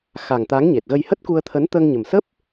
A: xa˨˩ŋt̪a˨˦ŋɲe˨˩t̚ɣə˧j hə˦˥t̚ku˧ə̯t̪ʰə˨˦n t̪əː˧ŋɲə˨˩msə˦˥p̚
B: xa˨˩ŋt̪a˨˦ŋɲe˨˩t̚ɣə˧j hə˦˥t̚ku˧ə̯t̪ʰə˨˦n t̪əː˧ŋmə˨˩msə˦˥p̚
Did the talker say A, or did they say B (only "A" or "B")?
A